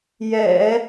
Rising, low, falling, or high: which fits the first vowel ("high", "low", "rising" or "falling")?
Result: low